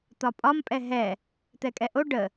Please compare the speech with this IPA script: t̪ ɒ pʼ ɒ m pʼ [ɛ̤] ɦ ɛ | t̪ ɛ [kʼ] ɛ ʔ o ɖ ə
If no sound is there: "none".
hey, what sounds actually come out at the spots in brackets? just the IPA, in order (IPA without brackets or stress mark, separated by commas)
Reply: ɛ, kʼ